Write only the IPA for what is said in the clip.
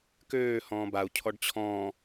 k øː h ɔ̃ː b a u̯ cʰ ɔ ɖ t͡ɕʰ ɔ̃ː

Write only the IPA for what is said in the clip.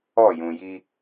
ɔ˦˨ j ũ˨ j i˦

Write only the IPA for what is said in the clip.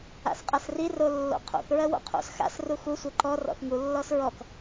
a̰ s qʼ a s r i r o lː o̰ qʰ o̰ θ ɹ ɜ w o̰ qʰ o̰ s x a̰ s r u x u sʷ ɘ ǃ ɔ r ɔ̰ θ ŋ u lː ɔ s ɹ ɔ k

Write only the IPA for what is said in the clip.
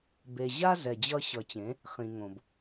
b e˨ ʑ a˦ z ɛ˨ d͡ʑ ʌ˦ ɕ ʌ˨ t͡ɕ ẽ˨˦ | χ ĩ˨ ŋ õ˨ b

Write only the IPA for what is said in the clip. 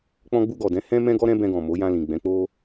k͡p ɔ̃˧ ɡ͡b u˧ ɡ ɔ˨ d ɛ̃˨˦ h ɛ̃˦ m ɛ̃˦ ɡ ɔ˦ ɾ ɛ̃˦ b ɛ̃˧ ɡ ɔ̃˨ m o˨˦ j ã˧ l ĩ˨ ɡ͡b ɛ̃˨˦ k͡p o˦

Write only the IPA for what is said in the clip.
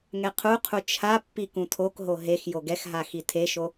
ŋ ɛ qʰ u qʰ u t͡ʃʰ a pː i k ũ tʰ o k ɦ o ɦ e x j o ɡ ɛ x ɦ a x i tʰ e ʃ o

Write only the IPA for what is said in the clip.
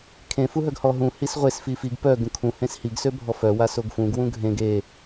kʰ ẽ f u ɦ œ ɡ h ɔ ɦ ũ h i s ʁʷ e s f i f i ɡ p œ ɡ ũ kʰ ũ h ẽ s h i ɡ s ø bʱ ɔ f œ w a s o ɡ f ũ ɡ w ũ ɡʱ ẽ ɡ e

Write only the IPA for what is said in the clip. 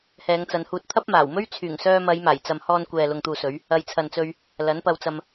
h ɛː˨˧ ŋ t͡s ɐ˨˧ n h uː˧ t̚ t̪ʰ ɐ˥ p̚ m aː˨˩ w m ɵ˥ ɥ t͡sʰ yː˨˩ ŋ s œː˧ m ɐ˨˧ j m aː˨˩ j t͡s ɐ˨ m h ɔː˧ n kʷ ɛː˨ l ʊ˨ ŋ t̪ uː˨ s ɵ˨˧ ɥ | ɐ˨˧ j t͡sʰ ɐ˨ n t͡s ɵ˧ ɥ | l ɐ˨˥ n p ɐ˧ w t͡s ɐ˧ m

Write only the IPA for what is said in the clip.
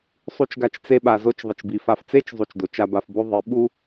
sˤ u˧ t͡ʃ ɡ a˧ t͡ʃ t͡s e˧ ɓ a˨ z o˧ t͡ʃ ðˤ ɪ˨ t͡ʃ b i˨ f a˧ f t͡s e˦ t͡ʃ zˤ u˨ t͡ʃ d o˨ t͡ʃ a˧ b a˧ f b o˦ ðˤ i˨˦ ɓ u˦

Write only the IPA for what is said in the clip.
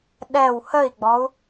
ɗ ɛ w h ə i̯ ɡ͡b ɔ u̯

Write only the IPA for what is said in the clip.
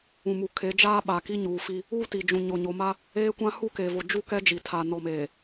ũ˨ m u˨ kʰ e˨˦ d͡ʒ aː˦ ɓ a˨ k i˦ ɲ uː˨ f i˦ | uː˦ t i˨ d͡ʒ ũ˨ ɲ o˨ ɲ o˨ m a˦ | eː˦ kʷ ã˦ h u˦˨ k e˨ v o˨ d͡ʒ u˦ k ɛ˦ d͡ʒ i˨ tʰ a˨ n ɔ˨ m eː˨

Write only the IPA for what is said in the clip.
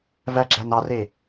v æ ɡ͡ǁ æ n ɑ r e

